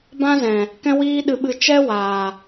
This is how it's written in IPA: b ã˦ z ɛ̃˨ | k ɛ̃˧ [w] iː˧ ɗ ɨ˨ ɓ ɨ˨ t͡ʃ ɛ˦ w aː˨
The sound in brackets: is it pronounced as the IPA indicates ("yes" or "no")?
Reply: yes